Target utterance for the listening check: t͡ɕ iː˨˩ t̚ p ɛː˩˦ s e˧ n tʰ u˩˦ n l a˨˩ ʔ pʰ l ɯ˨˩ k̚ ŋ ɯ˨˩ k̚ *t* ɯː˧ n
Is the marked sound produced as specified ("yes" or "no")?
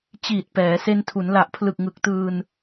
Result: yes